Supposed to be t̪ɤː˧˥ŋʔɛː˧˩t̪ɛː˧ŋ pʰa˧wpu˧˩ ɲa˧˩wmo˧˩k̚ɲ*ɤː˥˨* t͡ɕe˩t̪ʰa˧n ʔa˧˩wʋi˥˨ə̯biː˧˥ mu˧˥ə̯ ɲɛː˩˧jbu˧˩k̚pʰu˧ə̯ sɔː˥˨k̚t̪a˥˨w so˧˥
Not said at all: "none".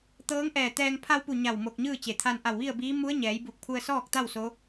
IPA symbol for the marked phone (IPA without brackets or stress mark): ɯː˥˨